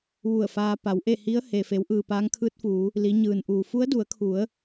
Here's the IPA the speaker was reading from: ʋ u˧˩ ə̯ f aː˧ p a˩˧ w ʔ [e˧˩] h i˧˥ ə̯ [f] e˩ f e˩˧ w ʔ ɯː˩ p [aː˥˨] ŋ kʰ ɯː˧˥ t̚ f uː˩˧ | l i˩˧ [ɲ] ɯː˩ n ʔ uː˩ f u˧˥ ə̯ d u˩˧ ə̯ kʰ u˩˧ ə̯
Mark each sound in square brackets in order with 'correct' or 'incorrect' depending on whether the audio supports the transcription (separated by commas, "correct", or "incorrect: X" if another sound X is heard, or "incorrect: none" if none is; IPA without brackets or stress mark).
incorrect: e˥˨, incorrect: h, incorrect: aː˧˥, correct